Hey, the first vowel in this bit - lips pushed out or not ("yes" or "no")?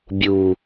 yes